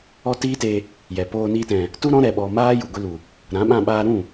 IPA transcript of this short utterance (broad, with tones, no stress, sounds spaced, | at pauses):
ɔ˦ t iː˦ t eː˧ | j ɛ˨ p oː˧ n iː˧ t ɛ̃˨ | t u˦ ɾ ɔ̃˦ ɾ ɛ˧ ɓ ɔ˧ m aː˦ j u˨ ɡʷ i˧ l u˨ | ɾ ã˨˦ ɓ ã˧ ɓ aː˧ ɾ ũ˦˨